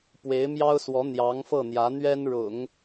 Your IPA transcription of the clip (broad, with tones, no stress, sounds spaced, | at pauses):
p w e˧˥ ɪ̯ m j ɑ˥ ʊ̯ s w ɔ˧˥ n̪ j ɑ˧˥ ŋ f ɤ˥˩ n̪ j ä˧˥ n̪ ɥ ɛ˥ n ɻ ʊ̰˨˩˦ ŋ